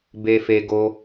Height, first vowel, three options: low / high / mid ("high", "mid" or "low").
mid